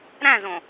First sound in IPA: ɾ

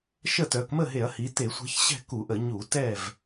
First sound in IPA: ʃ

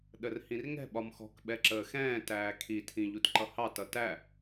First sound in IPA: ɗ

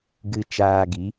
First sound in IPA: ɡ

